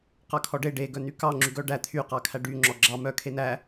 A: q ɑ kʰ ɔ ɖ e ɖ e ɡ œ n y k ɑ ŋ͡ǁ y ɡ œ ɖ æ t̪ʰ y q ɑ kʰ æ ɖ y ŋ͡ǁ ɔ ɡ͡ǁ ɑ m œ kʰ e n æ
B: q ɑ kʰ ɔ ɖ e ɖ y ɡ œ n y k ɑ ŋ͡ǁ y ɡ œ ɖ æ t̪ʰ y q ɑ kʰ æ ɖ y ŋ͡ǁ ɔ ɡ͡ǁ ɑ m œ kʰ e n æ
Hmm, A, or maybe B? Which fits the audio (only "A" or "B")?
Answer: A